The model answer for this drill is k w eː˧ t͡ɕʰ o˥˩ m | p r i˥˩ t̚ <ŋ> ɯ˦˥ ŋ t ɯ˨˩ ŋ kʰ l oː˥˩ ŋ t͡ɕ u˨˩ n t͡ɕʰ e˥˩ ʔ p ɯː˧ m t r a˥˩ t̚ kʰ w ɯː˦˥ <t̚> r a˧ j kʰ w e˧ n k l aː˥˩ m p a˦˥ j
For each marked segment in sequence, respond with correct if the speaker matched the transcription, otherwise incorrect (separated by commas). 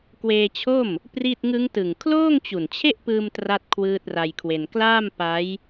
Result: correct, correct